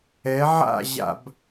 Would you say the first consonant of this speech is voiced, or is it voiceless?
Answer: voiced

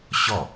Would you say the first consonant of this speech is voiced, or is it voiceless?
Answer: voiceless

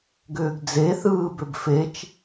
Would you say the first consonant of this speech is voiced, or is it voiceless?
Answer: voiced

